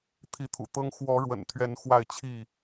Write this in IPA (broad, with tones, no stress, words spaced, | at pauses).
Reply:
t̪ʰi˨˦t̪ʰṵ˨˩t̪ɤ˦ŋ xwɔ˨˦ɻwə̰˨˩nt̪ʰɥɛ˨˦n xwa˥˨ɪ̯t͡ɕʰi˥˨